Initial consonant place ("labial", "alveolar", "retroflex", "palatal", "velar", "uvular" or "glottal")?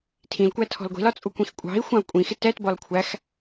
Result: alveolar